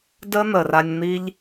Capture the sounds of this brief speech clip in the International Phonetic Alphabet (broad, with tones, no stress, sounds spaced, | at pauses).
d ə˦ n̪ ə˨ r a˧ nʲ n̪ i˧ ʎ